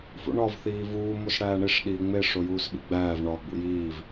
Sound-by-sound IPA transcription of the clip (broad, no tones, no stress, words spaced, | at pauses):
fṵɳɒv θiːvuː mosɽæːɳiʂ ɗiːŋ͡me ʂojuːsɓḭɡ͡bæːv ɳɒ ɡ͡bṵjiːv